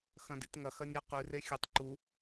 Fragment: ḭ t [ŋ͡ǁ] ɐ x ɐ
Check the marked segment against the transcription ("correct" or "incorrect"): incorrect